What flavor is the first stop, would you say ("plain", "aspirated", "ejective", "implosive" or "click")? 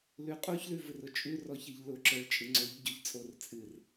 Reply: ejective